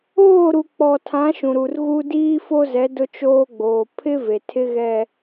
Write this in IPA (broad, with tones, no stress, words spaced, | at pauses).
oː˦˨ɾu˨k͡pɔ˨tʰã˨˦ ʃũ˨ɾu˨rɣu˦ diː˦fo˦zɛ˨˦ dʊ˦t͡ʃoː˦ɡ͡boː˨ pʰɪ˦ ve˨tʰɪ˦ ɣɛ˨